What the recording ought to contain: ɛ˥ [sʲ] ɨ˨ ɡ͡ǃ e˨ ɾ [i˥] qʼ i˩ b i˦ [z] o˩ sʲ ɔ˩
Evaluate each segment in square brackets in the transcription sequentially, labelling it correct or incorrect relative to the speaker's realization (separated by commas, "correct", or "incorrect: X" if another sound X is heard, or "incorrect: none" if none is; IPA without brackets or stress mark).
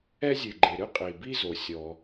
incorrect: zʲ, incorrect: ɨ˥, correct